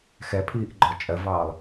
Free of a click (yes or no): no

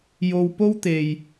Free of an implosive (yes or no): yes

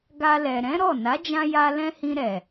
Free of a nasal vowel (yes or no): no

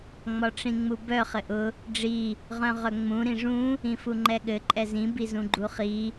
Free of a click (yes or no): no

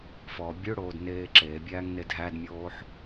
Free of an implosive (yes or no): yes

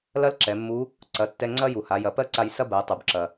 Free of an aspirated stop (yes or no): yes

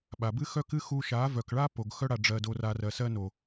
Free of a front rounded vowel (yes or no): no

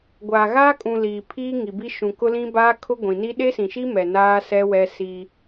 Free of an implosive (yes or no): no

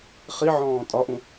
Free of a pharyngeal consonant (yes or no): no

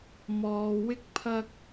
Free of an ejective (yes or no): yes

